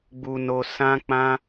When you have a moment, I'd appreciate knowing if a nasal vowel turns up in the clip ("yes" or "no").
yes